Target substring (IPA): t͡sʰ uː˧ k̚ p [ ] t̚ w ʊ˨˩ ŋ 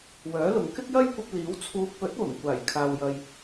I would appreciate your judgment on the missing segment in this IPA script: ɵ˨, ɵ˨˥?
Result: ɵ˨˥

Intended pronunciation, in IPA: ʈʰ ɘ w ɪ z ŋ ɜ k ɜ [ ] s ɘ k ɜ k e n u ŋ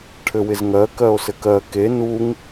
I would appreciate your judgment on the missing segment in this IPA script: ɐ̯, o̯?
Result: o̯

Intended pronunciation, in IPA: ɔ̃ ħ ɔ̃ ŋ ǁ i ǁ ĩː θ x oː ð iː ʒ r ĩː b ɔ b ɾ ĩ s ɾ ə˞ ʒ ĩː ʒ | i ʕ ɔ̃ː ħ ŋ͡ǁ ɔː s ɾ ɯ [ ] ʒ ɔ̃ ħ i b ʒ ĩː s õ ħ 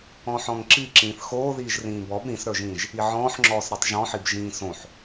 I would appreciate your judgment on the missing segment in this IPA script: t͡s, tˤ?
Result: tˤ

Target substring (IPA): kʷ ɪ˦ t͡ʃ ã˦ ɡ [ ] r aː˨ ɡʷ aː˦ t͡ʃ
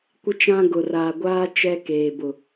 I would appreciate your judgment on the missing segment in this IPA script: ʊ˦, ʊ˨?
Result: ʊ˨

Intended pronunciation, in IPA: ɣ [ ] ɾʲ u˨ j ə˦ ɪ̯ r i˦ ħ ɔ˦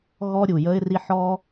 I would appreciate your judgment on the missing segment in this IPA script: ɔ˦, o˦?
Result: ɔ˦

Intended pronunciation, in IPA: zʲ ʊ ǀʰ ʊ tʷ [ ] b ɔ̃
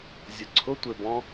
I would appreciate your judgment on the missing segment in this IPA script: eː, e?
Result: e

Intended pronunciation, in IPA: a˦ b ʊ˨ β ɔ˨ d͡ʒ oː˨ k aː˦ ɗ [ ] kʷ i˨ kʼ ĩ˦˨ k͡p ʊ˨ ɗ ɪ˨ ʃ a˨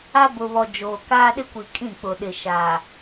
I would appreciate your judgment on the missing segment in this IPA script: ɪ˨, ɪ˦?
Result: ɪ˦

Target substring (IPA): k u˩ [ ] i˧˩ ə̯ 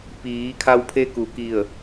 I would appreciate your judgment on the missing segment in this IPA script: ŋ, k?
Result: k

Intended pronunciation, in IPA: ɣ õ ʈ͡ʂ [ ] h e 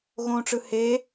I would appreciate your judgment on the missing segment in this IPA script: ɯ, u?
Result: ɯ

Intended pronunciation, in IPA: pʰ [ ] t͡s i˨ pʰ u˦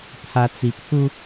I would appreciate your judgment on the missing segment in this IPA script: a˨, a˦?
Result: a˨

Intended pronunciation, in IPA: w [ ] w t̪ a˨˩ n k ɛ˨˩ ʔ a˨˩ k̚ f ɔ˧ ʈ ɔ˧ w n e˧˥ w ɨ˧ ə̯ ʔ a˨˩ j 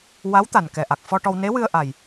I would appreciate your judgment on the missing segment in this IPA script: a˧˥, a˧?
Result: a˧˥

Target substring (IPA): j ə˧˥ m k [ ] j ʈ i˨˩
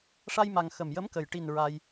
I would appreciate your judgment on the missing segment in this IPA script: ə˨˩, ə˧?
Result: ə˨˩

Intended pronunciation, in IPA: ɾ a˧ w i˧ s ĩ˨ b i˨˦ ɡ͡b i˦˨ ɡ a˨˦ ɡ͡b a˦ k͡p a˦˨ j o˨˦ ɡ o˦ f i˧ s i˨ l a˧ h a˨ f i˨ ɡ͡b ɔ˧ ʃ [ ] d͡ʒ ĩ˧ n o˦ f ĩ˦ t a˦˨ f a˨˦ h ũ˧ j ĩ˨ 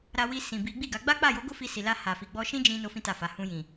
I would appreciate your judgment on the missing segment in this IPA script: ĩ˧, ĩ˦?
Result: ĩ˦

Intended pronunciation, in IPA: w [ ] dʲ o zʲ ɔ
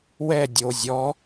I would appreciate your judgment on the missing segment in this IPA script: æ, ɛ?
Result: ɛ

